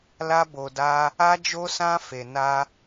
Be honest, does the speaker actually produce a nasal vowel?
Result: yes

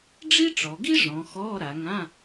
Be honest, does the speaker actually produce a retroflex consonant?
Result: yes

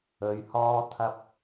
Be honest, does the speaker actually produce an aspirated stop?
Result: yes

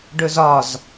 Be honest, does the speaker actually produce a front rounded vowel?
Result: no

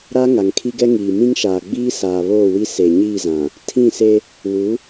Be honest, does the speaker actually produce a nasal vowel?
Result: yes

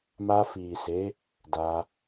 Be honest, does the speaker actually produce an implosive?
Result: no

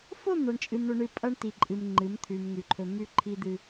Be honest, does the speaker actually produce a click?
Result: yes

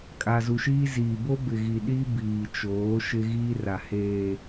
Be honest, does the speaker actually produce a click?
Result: no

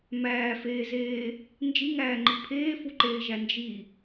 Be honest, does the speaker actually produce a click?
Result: yes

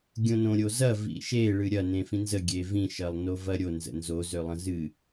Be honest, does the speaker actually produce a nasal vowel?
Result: yes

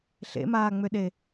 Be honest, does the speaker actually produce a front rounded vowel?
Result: yes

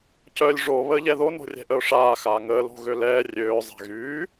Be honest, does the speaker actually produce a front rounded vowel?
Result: yes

